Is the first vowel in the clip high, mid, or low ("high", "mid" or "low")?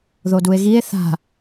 mid